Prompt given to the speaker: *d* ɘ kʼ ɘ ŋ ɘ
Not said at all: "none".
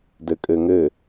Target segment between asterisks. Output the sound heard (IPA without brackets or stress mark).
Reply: d